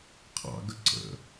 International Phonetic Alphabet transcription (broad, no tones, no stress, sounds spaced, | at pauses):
qʰ ɑ̰ ɡ ə ǀ ə̰